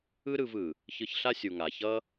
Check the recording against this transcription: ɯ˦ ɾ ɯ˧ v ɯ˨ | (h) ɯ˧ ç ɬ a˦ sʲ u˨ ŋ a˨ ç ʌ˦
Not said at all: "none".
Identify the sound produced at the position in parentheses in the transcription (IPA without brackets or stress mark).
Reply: ç